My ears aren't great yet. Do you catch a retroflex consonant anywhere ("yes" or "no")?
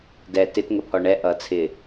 yes